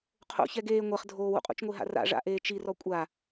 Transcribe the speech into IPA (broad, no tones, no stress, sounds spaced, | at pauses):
qʰ o̰ ç ɛ ɡ eː ŋʷ ɛ χ dʱ oː w ṵ qʼ ṵ t͡ʃ ŋʷ e ɦ a̰ r a̰ ʐ a̰ ʔ eː t͡ʃ i r ɔ kʷʼ a